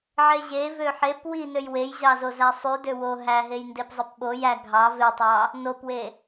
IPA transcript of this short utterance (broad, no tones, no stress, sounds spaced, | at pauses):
ʕ e ʑ e v ø ħ e p w i n ø j w e j ʑ ɑ z o z æ sˤ y d ø w o ɦ æ ɦ e j n d e p zˤ ɯ p ɓ o j æ ɡʱ ɑ v e tˤ ɑ | n o p w e